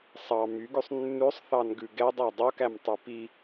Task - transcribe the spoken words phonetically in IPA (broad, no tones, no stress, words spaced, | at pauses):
sˤɑ myɡʉsˤ nːʉsˤθɑnɡʉ ɡɛdˤɑ dˤokæmtˤʉ pi